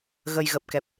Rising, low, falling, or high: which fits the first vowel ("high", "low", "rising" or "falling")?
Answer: low